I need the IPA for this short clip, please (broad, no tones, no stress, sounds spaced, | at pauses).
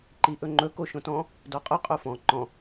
ǃ i ʔ ɵ ŋ͡ǃ ɵ k o ʃ õ t ɔ̃ | d ɔ qʼ ʊ qʼ o f ɔ̃ ǃ ɔ̃